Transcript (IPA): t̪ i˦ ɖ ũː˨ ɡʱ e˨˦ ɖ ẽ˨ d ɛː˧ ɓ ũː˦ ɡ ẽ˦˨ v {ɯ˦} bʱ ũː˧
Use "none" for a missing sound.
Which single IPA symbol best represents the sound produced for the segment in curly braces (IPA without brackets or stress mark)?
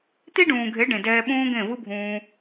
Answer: ɯ˦